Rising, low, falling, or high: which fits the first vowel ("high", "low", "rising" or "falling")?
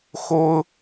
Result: high